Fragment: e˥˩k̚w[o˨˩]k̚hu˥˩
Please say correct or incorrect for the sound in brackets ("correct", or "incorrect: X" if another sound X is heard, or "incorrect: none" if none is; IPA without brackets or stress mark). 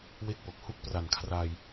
correct